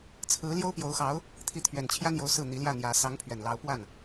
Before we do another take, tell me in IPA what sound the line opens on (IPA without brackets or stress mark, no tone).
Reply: t͡sʰ